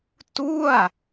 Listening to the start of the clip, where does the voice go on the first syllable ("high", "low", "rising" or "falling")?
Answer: falling